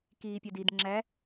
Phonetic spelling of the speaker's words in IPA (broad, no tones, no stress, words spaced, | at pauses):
kiːpʲɛdid ŋ͡ǁæ